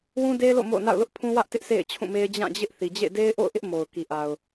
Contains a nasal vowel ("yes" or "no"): yes